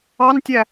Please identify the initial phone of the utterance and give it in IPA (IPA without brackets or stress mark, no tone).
ɑ